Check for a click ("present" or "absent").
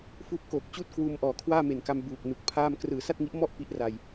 absent